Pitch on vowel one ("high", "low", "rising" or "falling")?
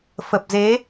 low